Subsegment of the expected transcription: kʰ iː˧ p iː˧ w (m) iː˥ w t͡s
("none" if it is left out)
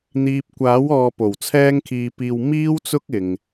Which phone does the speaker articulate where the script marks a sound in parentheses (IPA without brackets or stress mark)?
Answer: m